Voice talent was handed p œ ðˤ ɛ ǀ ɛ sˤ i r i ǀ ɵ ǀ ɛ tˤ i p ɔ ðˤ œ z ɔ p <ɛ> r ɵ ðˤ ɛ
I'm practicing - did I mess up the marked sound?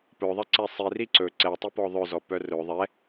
yes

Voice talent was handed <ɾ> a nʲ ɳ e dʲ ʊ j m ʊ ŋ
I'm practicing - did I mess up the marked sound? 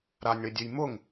no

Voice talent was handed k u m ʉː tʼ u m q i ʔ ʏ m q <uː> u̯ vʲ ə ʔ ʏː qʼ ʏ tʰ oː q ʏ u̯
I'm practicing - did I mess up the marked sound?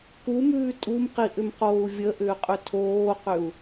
yes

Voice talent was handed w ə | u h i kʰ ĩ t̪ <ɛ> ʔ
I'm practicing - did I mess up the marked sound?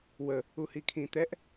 no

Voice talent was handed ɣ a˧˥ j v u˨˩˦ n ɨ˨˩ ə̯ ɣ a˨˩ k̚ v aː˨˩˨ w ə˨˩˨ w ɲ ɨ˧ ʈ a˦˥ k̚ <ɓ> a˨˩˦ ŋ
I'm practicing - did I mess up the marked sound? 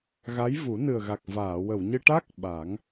no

